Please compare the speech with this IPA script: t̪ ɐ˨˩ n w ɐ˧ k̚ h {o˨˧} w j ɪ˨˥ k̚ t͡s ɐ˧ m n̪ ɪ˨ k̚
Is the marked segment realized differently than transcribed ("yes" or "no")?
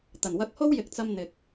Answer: yes